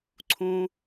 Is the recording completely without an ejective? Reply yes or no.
yes